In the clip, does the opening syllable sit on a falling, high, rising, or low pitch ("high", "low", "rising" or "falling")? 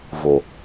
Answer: low